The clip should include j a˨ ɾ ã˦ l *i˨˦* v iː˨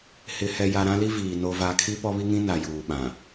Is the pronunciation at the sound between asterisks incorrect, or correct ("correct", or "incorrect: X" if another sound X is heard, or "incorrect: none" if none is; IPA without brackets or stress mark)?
incorrect: i˦